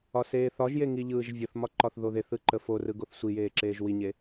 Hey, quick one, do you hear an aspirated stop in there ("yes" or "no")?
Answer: no